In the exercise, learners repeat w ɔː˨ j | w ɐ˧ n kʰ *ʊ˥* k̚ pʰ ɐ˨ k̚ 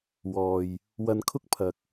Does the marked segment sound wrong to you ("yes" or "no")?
no